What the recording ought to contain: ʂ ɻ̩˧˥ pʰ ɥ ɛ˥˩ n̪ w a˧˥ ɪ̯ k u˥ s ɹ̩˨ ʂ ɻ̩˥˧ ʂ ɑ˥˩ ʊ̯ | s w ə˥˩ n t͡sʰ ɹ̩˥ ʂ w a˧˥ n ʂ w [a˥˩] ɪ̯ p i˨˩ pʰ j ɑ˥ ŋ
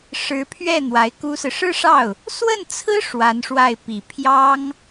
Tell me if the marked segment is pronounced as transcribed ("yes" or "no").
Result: yes